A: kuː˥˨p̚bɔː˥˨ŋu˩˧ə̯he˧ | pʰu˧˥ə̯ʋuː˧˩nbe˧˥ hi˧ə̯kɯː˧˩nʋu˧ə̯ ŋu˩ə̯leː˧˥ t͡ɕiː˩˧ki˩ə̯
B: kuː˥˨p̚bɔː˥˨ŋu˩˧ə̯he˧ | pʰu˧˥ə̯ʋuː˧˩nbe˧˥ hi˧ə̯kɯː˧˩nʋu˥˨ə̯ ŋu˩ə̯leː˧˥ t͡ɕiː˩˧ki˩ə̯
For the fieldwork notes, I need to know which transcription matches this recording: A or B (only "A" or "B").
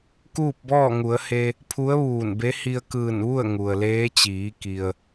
B